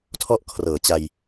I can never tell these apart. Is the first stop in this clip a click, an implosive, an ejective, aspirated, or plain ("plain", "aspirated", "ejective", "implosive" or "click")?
aspirated